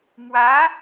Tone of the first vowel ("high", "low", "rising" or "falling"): rising